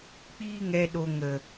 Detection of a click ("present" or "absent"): absent